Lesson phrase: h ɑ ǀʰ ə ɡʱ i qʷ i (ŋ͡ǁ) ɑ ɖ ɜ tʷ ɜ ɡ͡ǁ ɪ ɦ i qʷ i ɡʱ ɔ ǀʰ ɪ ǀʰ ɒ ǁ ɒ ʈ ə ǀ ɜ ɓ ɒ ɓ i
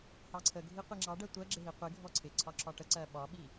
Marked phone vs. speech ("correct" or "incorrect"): correct